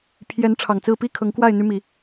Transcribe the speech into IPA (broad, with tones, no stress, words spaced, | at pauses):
pʰjɛ˨˦n ʈ͡ʂʰɑ˨˩ŋt͡sɹ̩˥˨ pi˥˨kʰɤ˨˦ŋkwa˥˨ɪ̯ n̪y˦mi˨˦